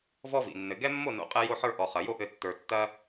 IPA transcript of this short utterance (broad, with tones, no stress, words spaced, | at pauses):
vɔ˦vḭ˨ nːɘ˨ɡɛ˦ mːo˦˨no̰˨˦qʼɛ˧ jo˧ħə˞˧ ʔɔ˨χɐ˨jo˦ʔɘ˧ tːə˞˨ tːɐ˦